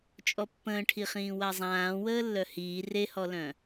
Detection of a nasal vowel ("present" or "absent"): present